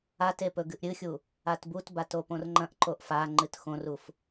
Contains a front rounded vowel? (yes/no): no